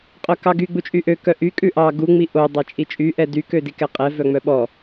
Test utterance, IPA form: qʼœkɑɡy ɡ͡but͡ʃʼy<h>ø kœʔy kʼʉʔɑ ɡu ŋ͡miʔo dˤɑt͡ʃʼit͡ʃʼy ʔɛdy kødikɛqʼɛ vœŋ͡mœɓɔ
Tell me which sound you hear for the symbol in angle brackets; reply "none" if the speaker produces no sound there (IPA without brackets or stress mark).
ʔ